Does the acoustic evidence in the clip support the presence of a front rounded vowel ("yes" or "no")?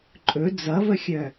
yes